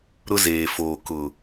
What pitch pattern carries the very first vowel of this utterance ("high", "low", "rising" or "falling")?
high